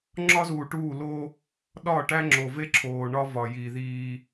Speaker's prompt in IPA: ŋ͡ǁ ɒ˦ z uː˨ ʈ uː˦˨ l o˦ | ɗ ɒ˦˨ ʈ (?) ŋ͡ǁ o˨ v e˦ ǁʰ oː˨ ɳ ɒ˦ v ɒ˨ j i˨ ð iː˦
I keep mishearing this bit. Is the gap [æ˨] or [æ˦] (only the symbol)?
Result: æ˦